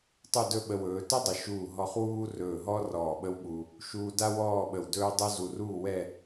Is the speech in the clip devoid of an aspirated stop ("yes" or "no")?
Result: yes